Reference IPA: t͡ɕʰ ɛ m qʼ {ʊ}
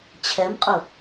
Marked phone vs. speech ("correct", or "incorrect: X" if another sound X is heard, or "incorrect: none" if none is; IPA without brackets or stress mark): correct